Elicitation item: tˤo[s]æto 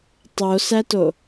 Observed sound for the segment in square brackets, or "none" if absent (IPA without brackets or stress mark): s